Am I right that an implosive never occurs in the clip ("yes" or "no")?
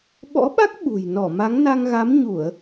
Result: no